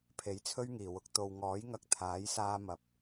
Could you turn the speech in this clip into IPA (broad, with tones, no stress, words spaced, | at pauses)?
pʰe˨˥jt͡sʰɵ˥ɥŋiː˨˩wʊ˨k̚ t̪o˨wŋɔː˨˥jŋɐ˧k̚ t̪ʰaː˨˥jsaː˧mɐ˨p̚